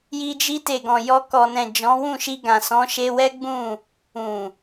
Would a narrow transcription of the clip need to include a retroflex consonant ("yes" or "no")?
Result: no